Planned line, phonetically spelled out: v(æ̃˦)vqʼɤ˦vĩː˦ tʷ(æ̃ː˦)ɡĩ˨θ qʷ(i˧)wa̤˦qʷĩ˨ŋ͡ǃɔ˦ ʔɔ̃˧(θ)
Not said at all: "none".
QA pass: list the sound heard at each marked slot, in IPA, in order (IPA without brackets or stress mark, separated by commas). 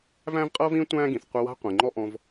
æ̃˦, æ̃ː˦, i˧, v